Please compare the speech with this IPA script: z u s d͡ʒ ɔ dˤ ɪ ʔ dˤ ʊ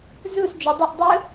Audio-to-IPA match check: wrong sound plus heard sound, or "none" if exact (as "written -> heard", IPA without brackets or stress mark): none